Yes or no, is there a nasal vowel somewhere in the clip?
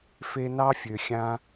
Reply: yes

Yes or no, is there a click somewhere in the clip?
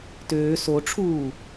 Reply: no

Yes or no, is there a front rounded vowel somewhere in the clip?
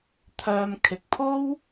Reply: yes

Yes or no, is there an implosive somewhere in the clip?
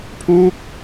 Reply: no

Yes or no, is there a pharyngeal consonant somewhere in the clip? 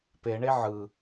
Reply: yes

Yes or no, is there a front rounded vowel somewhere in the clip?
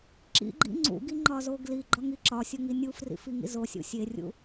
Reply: no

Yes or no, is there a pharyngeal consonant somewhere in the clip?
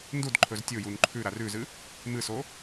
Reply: no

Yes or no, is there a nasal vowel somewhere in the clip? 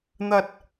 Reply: no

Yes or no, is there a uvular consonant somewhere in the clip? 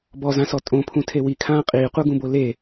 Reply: yes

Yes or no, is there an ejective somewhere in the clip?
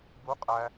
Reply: yes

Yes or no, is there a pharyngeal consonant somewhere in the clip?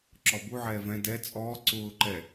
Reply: yes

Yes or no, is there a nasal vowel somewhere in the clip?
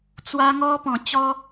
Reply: yes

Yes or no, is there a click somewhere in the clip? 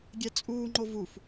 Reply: yes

